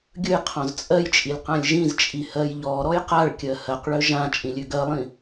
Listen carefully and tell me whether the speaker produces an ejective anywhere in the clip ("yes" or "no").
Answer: yes